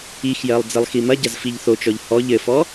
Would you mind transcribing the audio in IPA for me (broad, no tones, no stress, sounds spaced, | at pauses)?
i x j ɜ lˠ d͡z ɘ lˠ x i m ɐ ɟ ɐ z f i ʎ θ o t͡ʃ ɔ ʎ h ɔ ʎ ɘ f ɔ